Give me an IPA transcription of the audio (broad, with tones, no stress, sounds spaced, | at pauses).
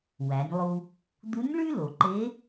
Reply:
w æ˩˧ nʲ lˠ u˧ | d̪ u˧˥ nʲ ɭ y˥ l o˩ ǃ e˧˥